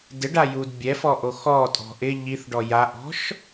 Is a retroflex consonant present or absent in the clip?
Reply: present